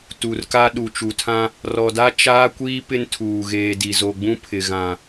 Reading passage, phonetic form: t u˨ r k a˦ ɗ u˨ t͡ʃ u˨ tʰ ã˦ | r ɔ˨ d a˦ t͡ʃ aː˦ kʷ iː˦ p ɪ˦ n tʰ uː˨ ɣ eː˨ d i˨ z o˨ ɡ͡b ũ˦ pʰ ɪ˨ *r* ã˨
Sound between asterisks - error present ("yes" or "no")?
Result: yes